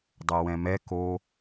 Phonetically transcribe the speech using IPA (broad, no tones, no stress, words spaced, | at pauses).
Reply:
dˤɛwɛ̃mɛ ko